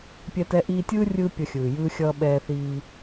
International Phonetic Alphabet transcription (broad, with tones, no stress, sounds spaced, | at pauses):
pʲ ɛ˧ t ɛ˧ ʔ iː˧ tʲ ɯː˦ rʲ ɯː˦ pʲ ʌ˧ xʲ ɯː˨ j ɯː˧ xʲ ʌː˧ ɓ ɛː˧ θ iː˧